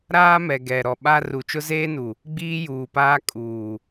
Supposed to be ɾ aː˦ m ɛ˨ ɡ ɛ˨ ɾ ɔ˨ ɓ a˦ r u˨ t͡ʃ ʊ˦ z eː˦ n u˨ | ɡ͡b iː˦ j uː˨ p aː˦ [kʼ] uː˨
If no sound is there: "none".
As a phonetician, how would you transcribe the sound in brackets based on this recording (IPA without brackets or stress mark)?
kʼ